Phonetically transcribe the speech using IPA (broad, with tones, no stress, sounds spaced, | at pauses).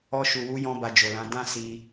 ɔ˧ ʃ u˨ w u˨˦ j ɔ̃˧ b a˧ d͡ʒ o˨ l ã˨˦ d ã˦ s i˧